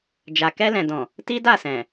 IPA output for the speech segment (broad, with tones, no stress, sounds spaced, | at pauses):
d͡ʒ a˨ k ɛ˧ l ɛ̃˨ d ɔ̃˨ | t i˦ d a˦˨ s ɛ̃˨